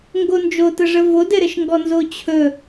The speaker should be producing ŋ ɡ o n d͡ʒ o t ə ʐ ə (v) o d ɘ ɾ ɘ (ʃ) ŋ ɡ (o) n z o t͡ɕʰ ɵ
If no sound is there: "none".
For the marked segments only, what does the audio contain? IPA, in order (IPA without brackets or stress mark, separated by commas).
v, ʃ, ɔ